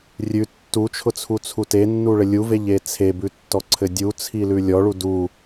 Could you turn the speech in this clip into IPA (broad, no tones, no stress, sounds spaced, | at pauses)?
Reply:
rʲ ʉ tː u t͡ʃʰ ʊ t͡sʰ u t͡sʰ u t e nː u ɭ ɘ lʲ u v e ʎ e t͡sʰ e b ʉ tː ɔ ǀʰ ɘ dʲ u t͡sʰ i l ʉ lʲ ɔ ɭ u d u